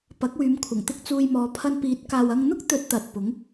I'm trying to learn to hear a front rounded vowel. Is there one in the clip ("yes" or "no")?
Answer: yes